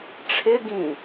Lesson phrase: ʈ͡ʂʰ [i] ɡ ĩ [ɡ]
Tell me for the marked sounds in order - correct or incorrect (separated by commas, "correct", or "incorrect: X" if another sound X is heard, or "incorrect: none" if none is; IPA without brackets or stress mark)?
incorrect: ɪ, incorrect: none